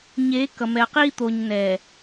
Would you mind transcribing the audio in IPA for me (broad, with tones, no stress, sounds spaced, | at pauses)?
ɲ eː˨˦ k ʌ˨ m ɛ˨ ɐ̯ q iː˦ t̪ o˨ ɲ n ɛː˨